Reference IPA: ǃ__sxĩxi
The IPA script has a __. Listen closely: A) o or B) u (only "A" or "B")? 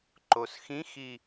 A